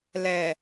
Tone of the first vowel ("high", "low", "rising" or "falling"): low